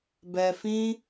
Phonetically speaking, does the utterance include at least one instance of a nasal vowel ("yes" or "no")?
yes